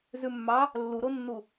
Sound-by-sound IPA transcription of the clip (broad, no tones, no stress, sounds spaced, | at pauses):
z ʉ mː ɑ | lː u ɾ o nː u